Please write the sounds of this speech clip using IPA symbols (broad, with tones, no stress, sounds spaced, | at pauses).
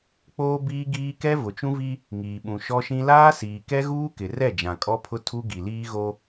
k͡p oː˦ b iː˦ ɡ iː˦ k ɛ˦ v ʊ˨ t͡ʃ ũ˦ v i˦ | ŋ iː˨ ɓ ũ˨ ʃ ɔ˦ ʃ ĩ˦ l aː˦ s iː˨ k ɛ˦ ɣ uː˦ k ɪ˨ r ɛ˦˨ d͡ʒ ã˨ kʼ ɔ˦ pʰ ʊ˦ tʰ u˦ ɡ i˨ l iː˦ ɣ o˦